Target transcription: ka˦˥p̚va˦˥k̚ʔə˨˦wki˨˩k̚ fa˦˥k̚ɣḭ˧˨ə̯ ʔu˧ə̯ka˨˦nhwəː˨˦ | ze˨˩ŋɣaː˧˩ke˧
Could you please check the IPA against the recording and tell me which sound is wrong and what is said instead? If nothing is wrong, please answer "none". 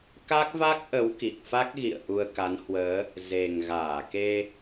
p̚ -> k̚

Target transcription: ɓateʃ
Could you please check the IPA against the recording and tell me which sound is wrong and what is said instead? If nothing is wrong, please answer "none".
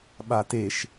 none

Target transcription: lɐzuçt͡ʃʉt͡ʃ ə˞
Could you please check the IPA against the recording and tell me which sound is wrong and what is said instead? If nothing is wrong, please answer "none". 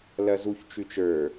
none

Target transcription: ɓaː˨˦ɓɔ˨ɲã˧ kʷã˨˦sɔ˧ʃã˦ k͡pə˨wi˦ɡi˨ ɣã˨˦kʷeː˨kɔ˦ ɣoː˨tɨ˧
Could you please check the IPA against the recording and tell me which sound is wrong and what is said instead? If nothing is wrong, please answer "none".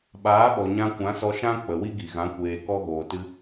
none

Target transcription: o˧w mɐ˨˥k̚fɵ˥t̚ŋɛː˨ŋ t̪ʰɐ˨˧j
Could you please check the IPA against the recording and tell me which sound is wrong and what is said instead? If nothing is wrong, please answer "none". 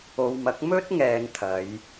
f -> m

